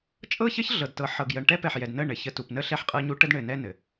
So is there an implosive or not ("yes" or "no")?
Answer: no